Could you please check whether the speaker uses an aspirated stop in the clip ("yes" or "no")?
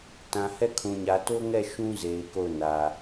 yes